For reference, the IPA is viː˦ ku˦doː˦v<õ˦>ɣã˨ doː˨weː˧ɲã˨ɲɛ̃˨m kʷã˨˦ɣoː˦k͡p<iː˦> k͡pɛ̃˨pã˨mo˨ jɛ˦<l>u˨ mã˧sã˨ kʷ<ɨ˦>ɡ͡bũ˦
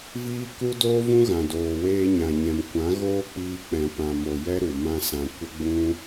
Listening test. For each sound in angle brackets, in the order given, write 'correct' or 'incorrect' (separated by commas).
incorrect, incorrect, incorrect, incorrect